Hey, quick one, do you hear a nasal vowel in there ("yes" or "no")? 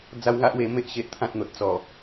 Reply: yes